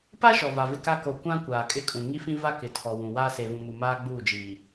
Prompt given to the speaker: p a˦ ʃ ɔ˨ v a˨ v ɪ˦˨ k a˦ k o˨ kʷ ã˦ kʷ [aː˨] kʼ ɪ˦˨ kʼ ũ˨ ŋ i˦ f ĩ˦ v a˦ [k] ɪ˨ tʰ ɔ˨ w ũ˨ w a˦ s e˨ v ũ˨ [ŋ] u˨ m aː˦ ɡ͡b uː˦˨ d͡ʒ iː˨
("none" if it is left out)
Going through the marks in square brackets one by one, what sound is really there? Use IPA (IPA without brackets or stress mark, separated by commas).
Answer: aː˨, k, m